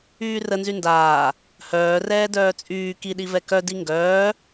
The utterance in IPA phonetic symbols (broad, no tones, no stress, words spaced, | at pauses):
yːrə nzyndaː | hœː rɛːdœːt͡sʼyː kiɗivɛ kœdi ŋɡœː